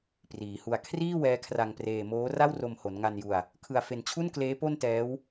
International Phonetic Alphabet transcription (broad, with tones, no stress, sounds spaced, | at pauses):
p r iː˩˦ h u˧ a̯ kʰ r iː˥˩ w ɛː˦˥ kʰ r a˧ ŋ p r eː˧ m oː˦˥ r a˥˩ w r o˧ m h o˩˦ n ŋ a˧ n j u˧ a̯ | kʰ ɯ˧ a̯ f e˧ n t͡ɕʰ u˥˩ n k l eː˦˥ p o˥˩ n t ɛː˦˥ w